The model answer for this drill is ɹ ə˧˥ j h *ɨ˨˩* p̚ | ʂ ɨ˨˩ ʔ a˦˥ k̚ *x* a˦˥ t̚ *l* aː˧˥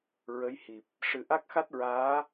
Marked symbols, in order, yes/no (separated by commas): no, yes, no